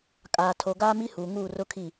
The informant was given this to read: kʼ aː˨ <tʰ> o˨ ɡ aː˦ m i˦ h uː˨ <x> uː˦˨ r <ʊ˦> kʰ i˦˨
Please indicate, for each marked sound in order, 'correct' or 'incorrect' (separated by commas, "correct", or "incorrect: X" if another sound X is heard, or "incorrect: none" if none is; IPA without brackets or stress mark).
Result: correct, incorrect: ŋ, correct